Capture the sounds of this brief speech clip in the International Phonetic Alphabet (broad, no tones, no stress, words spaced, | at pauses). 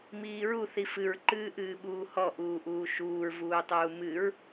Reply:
miːɹu θifɨɹ ǃɨːʔɨːɓuːhɔ ʔuːʔuːʃuːɹ vuːtˤuːmɨɹ